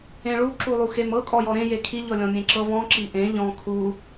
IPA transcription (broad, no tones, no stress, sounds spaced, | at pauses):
ẽ ɭ u ǁ u lˠ u x e m ɤ kʼ ɔ j ɔ ɾ ẽ j e kʰ i ʎ ɔ lʲ ɔ̃ mʲ ẽ ǁ ɤ v ɔ̃ ǁ i ʔ ẽ ʎ ɔ̃ kʰ u